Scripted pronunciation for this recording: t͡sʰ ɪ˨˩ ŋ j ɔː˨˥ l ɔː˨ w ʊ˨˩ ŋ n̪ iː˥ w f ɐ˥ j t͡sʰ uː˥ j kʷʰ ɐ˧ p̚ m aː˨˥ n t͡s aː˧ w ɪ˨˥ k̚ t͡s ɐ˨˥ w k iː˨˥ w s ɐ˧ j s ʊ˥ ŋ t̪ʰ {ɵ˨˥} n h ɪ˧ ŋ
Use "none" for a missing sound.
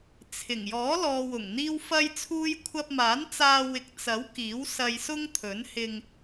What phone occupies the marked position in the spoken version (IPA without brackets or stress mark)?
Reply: ɵ˨˥